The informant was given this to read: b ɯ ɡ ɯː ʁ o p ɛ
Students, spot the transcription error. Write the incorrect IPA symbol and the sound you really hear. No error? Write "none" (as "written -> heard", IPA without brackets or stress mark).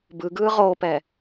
none